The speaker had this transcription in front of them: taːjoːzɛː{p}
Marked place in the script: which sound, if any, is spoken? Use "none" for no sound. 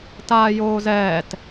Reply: t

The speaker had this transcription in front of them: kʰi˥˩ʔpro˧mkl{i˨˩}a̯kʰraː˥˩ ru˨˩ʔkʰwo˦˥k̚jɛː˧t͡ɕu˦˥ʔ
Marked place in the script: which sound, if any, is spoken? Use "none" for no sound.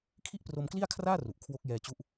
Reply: i˥˩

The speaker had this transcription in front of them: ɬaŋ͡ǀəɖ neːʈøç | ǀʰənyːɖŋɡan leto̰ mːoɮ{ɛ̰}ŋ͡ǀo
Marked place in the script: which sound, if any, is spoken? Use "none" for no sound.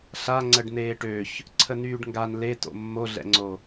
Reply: ɛ̰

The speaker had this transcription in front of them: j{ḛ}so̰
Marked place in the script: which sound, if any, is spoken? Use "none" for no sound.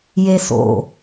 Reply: e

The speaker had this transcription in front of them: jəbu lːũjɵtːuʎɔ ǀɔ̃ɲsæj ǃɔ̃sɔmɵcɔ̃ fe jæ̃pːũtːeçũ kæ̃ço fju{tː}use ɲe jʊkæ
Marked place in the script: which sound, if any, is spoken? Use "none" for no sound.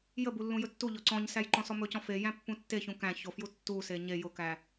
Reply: tː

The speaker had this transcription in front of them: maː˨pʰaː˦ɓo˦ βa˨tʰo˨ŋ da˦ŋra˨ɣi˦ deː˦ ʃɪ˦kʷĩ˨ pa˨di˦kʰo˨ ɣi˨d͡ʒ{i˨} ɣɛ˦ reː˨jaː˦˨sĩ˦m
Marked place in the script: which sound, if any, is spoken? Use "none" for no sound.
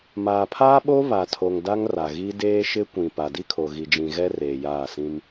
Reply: ĩ˨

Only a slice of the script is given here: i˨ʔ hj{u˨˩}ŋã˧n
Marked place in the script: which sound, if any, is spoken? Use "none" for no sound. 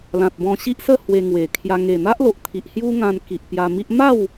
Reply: u˦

